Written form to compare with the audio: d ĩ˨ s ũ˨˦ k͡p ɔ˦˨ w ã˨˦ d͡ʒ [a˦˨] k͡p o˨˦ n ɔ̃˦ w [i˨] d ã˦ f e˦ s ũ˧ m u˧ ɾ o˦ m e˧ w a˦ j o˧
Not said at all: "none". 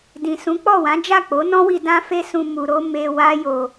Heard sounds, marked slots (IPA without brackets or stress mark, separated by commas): a˦˨, i˧